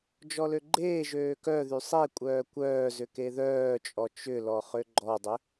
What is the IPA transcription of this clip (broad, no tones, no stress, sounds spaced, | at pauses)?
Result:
d͡ʒ ɔ l ø ɡ͡ǃ eː ʒ øː k œ ð y sˤ e kʷʼ œː kʷ œː z ʏ k e ð œː t͡ʃʼ ɔ t͡ʃ ʏ l ɔ χ ø ɡ͡ǃ ɔ dˤ ʏ